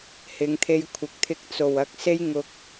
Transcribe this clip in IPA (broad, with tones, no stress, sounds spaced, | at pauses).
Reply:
h ɪ˨˧ ŋ t̪ʰ e˧ j kʷʰ ɪ˨˥ k̚ t̪ʰ ɪ˧ k̚ t͡s o˨ w ɐ˧ k̚ s e˥ j ŋ ʊ˧ k̚